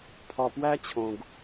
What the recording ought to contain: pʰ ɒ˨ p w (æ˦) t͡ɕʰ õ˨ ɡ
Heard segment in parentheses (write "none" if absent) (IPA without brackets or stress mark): æ˦